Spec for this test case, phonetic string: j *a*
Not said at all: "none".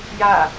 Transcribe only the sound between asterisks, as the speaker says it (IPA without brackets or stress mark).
a